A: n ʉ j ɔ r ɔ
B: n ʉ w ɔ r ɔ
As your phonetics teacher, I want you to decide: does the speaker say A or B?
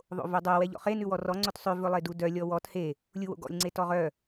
B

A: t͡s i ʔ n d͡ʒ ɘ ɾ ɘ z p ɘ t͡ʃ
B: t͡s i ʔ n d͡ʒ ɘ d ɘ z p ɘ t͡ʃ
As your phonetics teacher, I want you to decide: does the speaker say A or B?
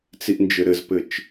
A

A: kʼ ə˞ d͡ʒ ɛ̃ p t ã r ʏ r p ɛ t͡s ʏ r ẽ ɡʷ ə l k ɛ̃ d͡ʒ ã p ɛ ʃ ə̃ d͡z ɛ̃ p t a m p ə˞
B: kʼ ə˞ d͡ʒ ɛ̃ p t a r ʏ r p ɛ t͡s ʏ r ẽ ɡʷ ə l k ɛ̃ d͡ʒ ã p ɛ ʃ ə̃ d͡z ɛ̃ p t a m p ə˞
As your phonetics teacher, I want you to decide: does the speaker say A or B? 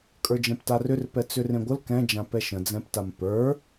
B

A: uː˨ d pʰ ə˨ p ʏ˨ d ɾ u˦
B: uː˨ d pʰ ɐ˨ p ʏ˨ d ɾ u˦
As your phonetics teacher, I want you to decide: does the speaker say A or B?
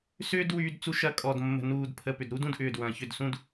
A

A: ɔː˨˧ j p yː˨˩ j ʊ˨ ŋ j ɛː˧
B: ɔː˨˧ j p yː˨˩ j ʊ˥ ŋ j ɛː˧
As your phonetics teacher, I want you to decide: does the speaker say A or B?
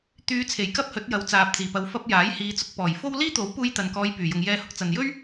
A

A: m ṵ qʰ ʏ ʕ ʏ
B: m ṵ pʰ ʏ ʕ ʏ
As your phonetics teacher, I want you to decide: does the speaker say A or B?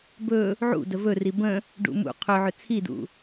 A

